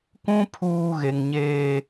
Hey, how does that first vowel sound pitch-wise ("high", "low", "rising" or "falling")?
high